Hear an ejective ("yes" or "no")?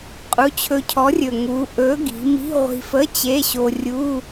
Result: yes